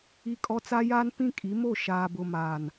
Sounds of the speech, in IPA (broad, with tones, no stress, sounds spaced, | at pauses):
i˦ kʼ ɔ˦ t͡s a˦ j aː˦ n p ĩ˦ kʼ i˨˦ m o˦˨ ʃ aː˨ b ʊ˨ m aː˨ n